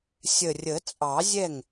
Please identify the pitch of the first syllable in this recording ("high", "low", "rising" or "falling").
low